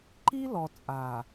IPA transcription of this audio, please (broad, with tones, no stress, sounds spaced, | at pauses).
ǃ i˦ l ɔ˨ t͡sʼ a˨